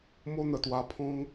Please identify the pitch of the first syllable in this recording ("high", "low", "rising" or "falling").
high